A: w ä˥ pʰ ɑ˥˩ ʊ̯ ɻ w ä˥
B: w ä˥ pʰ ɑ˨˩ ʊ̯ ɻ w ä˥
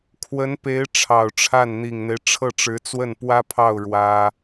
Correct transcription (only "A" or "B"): A